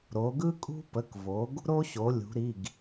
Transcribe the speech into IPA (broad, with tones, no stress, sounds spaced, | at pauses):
ɾ o˩˧ ɡ ɯ˦ kʼ ṳ˦ p ə˩˧˩ k v o˩˧ ɡ | ɾ o˦ ɕ o˩˧ lʲ ṳ˩˧ ɾ i˩˧˩ ɡ